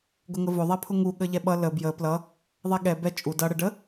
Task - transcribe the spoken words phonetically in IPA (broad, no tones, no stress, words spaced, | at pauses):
ɡʊŋəvʊ ðˤɛpʰʊŋu ɠəʎɛɓʌ lə bjə plʌ | ðˤɛɠɛ bɛ t͡ʃʼu dʌ ɽəɖə